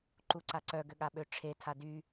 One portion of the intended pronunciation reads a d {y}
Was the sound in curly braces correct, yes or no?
yes